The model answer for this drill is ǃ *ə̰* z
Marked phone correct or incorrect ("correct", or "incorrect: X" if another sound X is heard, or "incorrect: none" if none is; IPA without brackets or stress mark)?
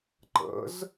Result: correct